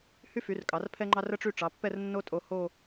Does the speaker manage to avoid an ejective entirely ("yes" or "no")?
no